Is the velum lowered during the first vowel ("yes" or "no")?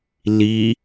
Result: no